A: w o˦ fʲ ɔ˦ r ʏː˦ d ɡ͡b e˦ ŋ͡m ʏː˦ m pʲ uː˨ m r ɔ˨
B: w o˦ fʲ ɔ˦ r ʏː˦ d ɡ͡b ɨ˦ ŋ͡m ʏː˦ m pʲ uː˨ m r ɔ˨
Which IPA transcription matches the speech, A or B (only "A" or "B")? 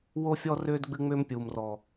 B